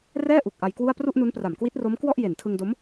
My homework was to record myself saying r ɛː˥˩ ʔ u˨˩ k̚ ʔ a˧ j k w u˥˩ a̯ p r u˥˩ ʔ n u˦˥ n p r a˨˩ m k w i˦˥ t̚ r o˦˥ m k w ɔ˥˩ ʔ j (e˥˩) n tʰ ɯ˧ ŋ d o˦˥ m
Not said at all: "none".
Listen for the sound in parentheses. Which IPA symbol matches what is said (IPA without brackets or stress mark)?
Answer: e˨˩